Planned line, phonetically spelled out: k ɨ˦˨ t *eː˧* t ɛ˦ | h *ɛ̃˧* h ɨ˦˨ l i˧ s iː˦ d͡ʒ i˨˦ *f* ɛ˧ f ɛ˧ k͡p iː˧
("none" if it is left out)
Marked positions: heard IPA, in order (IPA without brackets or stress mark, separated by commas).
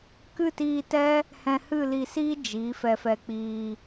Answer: iː˧, ɛ̃˧, f